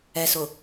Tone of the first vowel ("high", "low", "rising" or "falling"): low